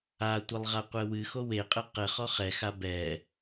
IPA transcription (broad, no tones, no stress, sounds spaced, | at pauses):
a tʷ e lˠ ʁ a qʷ ɘ w ɨ x o w e qʼ ɘ q ɘ χ ɔ χ ɛ x a b ɛ